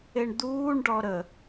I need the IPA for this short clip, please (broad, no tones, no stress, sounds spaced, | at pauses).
e ɳ d̪ uː ɳ ɖ ɔ ɾ ə